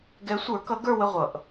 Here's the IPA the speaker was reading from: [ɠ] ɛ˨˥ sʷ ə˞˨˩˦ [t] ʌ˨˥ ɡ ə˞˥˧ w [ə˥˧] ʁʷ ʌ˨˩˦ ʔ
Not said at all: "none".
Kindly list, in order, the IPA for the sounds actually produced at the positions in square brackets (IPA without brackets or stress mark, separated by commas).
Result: ɡ, k, ə˥˧